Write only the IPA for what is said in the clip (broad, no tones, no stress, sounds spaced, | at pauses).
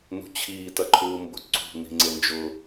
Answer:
n ṳ t͡ɕʰ iː t ɐ ǃʰ uː m b ʊ ǀ ṳ n̪ i̤ ŋ͡ǀ e n d͡ʒ ʊ